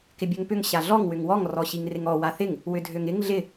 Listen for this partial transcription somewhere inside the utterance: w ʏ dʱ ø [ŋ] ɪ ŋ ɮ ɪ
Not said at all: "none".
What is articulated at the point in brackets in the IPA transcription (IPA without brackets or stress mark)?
ŋ